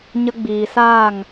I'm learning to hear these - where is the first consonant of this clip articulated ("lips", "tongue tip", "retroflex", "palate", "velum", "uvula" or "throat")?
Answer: palate